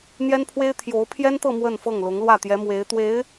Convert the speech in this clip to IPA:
n̪jɛ˥npʰwe˥ɪ̯ t̪ʰjo˧˥ʊ̯pʰjɛ˥nt̪ɤ˥˧ mwə˥˧nfɤ˥˩ŋlʊ˧˥ŋ lwä˥˩t̪jɛ˧˥mwe˧˥ɪ̯ t̪we˧˥ɪ̯

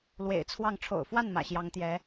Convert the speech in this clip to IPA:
lwḛ˨˩ɪ̯t͡sʰwɑ˥˩ŋ ʈ͡ʂʰo̰˨˩ʊ̯fwa˥˩n mä̰˨˩ɕjɑ˧˥ŋt̪jɛ˧˥

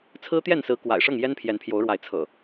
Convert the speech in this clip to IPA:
t͡sʰɹ̩˦t̪jɛ˥˨nsɹ̩˨˦ kwa̰˨˩ɪ̯ʂɤ˥˨ŋ jɛ˦npʰjɛ˨˦npʰjo˨˦ʊ̯ɻwa˨˦ɪ̯ t͡sʰɤ̰˨˩

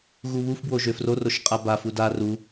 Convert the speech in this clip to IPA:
ɣuβuf bwoʒøfror oʃqʼaba fuda ru

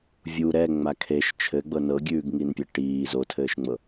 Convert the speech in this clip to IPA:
vʲu ɾɛŋ͡ma kʰeʃ t͡ʃʰɘɡ͡bɤ nɤɡʲʉːɡŋinpʲɘ ʈiː zotʰɘːʃŋ͡mɤ

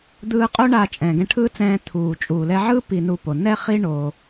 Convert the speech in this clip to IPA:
d̪ɯː˧qʼo˦ɳa˧ t͡ʃʼɛ̃ː˨ɡɛ̃˧ʈʰɯː˦t͡sɛ̃ː˧ t̪ʰuː˨ t͡ʃʼuː˨lɛ˧ ʕɯː˦ pi˧nu˧po˨ nɛ˦χi˦ ɳo˧

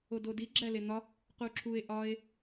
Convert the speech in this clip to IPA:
ododi ɡ͡ǁælen̪ɒ | quǁʰue̯ ʔɒe̯

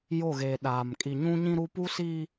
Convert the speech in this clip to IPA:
jo˦˨ɣeː˨ ɗaː˨m kʼi˨ɲũ˦ɲĩ˦ɾu˦ pu˦si˦

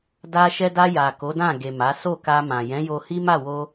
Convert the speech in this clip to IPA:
da˧ʃɛ˧da˧ ja˨ ko˨˦dã˦˨ ɡe˨ ma˨˦ so˦˨ka˧mã˨ jɛ̃˨˦jo˧hi˦ ma˦˨wo˧

